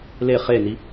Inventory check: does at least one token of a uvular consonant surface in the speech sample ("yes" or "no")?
yes